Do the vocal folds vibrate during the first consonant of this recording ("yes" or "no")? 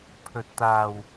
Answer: no